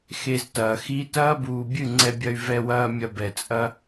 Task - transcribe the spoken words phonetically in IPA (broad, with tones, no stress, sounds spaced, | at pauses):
x e˧ z t ɐː˨ x i˦ t ɐː˦ b uː˨ bʲ ɨ˦˨ ŋ͡ǀ ɛ˧ bʲ ɐ˧ y̯ v ɛ˧ w ɐː˧ mʲ ɐ˧ b ɛ˨ t͡sʼ ɐ˦